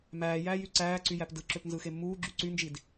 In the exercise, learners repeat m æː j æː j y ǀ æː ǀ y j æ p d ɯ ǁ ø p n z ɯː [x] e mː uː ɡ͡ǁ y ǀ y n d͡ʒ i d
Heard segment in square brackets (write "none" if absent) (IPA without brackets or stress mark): x